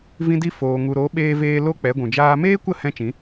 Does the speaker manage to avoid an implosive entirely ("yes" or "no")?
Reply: no